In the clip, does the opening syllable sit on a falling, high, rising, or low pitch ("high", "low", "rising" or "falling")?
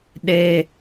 high